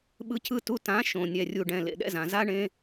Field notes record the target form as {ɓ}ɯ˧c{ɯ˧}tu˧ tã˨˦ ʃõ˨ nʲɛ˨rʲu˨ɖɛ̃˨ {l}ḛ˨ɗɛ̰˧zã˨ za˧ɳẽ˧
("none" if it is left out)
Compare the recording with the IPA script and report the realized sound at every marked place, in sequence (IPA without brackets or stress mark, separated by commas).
ɓ, ɯ˧, l